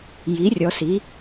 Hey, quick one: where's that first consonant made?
palate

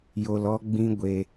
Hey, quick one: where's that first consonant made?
palate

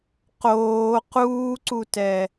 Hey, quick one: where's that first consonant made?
uvula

